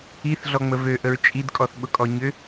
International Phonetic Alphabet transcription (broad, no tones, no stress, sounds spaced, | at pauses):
i θ ɮ ɔ ŋ͡m ə v ø ʔ ə ɹ t͡ʃʼ i d kʼ ɔ θ ɓ ʊ kʼ ɔ ɲ ʏ